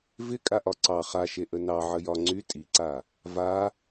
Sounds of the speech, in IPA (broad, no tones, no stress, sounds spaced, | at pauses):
v ɪ kʼ a ʔ ɒ ǀ ɑ χ a ʃ e ʔ ə n ɑ ʕ ə j ɒ ŋ͡ǀ y tʼ i ǀ a | v a